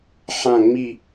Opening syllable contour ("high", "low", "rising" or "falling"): falling